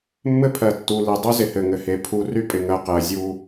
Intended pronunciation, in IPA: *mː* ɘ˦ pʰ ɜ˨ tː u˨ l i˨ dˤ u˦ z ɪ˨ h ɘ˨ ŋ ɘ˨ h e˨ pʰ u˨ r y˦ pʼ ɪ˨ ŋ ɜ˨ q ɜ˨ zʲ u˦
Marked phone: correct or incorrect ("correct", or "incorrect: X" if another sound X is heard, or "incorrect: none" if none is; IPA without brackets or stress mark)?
correct